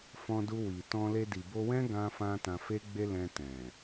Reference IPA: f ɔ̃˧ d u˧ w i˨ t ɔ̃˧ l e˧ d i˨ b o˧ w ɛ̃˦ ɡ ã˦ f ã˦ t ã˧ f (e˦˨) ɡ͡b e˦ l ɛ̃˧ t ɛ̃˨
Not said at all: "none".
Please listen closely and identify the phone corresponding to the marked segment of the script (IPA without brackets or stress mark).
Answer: e˦